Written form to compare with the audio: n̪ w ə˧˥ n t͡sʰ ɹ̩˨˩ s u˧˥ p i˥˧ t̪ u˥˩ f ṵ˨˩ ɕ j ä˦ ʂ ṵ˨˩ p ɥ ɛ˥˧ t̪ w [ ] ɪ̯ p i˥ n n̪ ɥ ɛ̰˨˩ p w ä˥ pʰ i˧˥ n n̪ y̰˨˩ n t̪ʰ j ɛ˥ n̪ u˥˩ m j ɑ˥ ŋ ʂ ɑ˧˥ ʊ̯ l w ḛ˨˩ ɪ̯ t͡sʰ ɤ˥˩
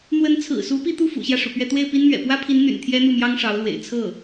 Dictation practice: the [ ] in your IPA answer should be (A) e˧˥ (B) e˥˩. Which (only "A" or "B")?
B